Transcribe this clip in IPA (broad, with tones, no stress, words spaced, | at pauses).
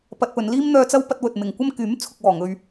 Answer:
pɐ˧t̚pɵ˨˧n liː˥mn̪œː˧t͡sɐ˥w pɐ˧t̚wɵ˨t̚mɪ˨ŋ kʷɐ˥m kyː˨˥mt͡sʰʊ˨k̚wɔː˨˩ŋɵ˨ɥ